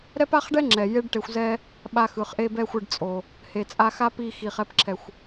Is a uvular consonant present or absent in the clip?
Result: present